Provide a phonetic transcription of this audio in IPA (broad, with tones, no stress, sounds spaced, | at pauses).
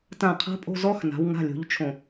t ã˦˨ qʰ a̤˦˥ pʼ o̤˧˥˧ z ɔ˦˥ x n a̤˨˦ w ŋ a̤˧˥˧ lʲ o̤˨˦ ʎ t͡ʃʰ õ˨˩